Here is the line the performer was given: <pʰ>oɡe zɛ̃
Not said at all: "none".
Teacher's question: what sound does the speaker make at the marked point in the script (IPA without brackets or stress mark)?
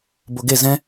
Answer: b